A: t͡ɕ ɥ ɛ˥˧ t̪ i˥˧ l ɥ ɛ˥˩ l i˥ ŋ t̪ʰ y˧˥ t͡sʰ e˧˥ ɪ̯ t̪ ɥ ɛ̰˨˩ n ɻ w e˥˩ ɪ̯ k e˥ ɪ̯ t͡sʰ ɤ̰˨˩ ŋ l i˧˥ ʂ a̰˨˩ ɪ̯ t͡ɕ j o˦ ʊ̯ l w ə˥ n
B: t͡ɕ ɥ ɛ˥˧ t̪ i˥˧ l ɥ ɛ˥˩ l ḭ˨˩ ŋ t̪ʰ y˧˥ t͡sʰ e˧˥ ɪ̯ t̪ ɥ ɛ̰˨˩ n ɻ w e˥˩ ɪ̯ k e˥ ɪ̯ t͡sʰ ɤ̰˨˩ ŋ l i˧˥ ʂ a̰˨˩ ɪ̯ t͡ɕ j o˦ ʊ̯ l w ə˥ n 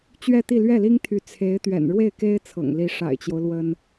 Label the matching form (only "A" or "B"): A